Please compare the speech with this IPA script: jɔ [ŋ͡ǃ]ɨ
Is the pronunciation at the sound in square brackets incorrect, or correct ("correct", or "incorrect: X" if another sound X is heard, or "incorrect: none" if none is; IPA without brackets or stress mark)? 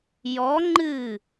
correct